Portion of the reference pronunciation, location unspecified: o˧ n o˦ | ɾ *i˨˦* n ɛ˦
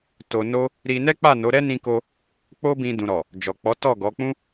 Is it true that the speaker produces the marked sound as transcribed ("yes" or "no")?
no